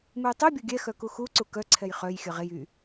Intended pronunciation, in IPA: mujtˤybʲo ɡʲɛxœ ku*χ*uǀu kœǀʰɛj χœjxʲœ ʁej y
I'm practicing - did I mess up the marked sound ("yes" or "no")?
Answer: yes